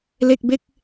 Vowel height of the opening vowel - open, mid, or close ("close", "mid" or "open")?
mid